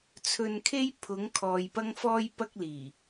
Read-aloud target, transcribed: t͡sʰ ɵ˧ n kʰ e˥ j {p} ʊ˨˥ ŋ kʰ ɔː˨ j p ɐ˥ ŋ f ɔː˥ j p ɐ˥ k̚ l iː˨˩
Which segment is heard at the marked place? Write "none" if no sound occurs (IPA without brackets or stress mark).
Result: pʰ